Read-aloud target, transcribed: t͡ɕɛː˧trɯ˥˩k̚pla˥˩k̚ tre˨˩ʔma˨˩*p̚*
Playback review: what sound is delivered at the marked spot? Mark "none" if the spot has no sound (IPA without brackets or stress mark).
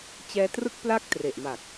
k̚